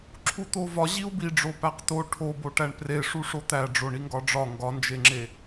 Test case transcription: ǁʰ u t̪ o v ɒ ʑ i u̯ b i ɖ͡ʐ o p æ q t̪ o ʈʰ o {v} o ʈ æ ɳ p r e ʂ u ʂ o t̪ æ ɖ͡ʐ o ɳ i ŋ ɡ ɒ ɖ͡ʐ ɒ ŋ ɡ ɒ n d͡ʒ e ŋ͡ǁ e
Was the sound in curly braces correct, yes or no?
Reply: no